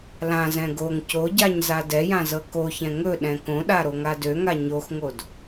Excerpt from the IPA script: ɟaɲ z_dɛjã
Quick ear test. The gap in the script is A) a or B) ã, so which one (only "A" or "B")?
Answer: A